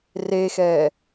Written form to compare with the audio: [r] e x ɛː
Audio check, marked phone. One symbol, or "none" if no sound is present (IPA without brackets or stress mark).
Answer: r